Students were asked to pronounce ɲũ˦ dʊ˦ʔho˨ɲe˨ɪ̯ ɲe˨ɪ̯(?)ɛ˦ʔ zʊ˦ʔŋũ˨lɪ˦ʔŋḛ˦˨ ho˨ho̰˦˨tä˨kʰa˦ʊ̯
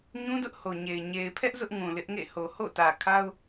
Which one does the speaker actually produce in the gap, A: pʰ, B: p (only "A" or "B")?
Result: A